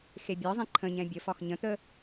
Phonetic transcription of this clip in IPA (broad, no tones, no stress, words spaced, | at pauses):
xebʲɒzˤẽ ǃʰə̃ɲɛ̃ bʲəfɒx ɲə̃t̪ə